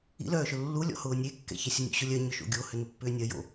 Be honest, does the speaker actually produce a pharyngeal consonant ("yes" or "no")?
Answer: no